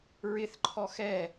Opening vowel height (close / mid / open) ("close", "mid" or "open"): close